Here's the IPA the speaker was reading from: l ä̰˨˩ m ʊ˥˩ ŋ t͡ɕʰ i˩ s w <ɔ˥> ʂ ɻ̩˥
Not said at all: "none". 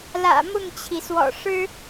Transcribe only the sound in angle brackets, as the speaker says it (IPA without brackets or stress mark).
ɔ̰˨˩